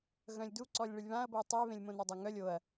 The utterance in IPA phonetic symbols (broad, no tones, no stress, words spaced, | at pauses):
ɣœ̃lʲduǀɔlʲ ɭɨlʲβãɐ̯bɤɐ̯ tˤe βẽlʲmõnodˤə ŋœlʲ oɐ̯